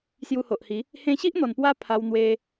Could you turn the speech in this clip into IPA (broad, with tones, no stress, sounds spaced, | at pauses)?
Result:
s j u˧ h o˨ ʔ h i˨˦ | h ẽ˧ ɕ i˦ ʔ n̪ ɔ˨˩ n p w a˧ pʰ a˧ w n̪ w e˧